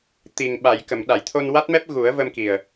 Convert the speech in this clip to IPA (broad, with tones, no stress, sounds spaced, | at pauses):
t̪ i˨˩ ŋ ɓ a˨˩˨ j k ə˨˩˨ m ɗ a˨˩˨ j t̪ʰ o˧ n w a˦˥ t̚ m ɛ˦˥ p̚ ɣ u˨˩˦ ə̯ v ə˧ m k i˨˩ ə̯